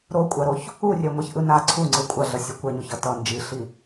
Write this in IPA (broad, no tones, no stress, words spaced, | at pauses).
ɾokʷʼaɾoç | urʲɛŋʷɛçʔɯ na ǀʰuŋ͡ǀɯ kʷʼaɮʌsʲɯ kʷɛɲoçʌ tʌ nd͡ʒiɬi